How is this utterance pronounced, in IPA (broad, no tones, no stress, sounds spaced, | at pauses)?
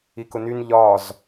i k ʊ n y n ʎ ɒ z